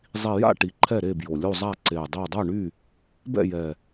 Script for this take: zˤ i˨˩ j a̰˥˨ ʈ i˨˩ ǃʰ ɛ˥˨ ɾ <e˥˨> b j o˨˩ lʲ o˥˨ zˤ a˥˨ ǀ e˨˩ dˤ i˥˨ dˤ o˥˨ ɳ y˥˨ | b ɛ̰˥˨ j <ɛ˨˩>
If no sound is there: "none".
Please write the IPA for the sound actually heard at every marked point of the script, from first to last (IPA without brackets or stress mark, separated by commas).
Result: e˥˨, ɛ˨˩